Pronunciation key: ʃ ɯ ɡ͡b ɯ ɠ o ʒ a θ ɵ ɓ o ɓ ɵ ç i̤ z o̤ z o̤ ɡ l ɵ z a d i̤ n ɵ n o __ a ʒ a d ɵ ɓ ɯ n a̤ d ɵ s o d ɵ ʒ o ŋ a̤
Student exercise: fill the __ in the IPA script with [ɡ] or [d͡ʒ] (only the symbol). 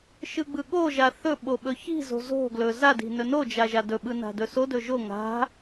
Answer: d͡ʒ